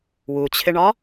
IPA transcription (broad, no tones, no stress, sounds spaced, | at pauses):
w u t͡ɕʰ ɪ ɳ ɒ